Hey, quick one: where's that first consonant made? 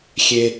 velum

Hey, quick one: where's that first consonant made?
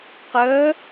uvula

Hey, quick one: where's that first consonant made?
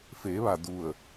lips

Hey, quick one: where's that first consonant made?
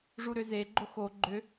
retroflex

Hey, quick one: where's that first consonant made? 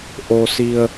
throat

